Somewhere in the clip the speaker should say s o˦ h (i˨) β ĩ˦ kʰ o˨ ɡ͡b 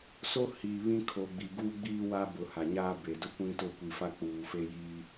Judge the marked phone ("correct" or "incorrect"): correct